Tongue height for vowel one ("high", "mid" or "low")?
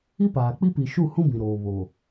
high